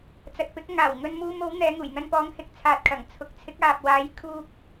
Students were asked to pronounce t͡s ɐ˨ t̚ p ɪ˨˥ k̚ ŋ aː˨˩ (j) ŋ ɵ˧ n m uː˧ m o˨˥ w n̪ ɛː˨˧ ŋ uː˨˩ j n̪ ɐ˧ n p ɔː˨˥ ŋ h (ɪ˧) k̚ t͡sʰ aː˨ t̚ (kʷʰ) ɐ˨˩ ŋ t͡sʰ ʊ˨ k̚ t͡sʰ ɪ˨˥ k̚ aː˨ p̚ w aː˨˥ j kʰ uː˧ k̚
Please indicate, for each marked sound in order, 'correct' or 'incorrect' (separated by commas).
incorrect, incorrect, incorrect